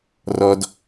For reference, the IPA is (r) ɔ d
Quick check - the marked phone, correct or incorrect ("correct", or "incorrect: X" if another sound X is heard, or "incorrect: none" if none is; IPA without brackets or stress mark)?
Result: correct